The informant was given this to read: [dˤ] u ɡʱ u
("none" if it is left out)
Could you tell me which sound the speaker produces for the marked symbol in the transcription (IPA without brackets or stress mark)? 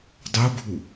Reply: dˤ